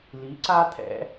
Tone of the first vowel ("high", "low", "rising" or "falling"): rising